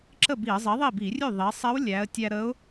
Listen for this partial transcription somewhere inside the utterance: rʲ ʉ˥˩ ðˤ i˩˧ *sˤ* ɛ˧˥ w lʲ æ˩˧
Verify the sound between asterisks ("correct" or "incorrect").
correct